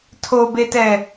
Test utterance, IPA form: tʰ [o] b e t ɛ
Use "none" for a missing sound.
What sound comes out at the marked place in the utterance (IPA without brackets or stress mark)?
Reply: o